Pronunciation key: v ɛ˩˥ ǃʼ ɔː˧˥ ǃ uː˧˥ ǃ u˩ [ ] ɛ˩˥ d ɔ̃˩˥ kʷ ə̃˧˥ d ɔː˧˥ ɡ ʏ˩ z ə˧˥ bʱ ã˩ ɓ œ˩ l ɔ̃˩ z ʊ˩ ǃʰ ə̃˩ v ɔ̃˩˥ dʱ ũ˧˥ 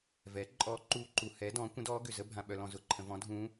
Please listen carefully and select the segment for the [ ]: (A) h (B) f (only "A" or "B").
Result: A